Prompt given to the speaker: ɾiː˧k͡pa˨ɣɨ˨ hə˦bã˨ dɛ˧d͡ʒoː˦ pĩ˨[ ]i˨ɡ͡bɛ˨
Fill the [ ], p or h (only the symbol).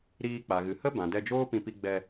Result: p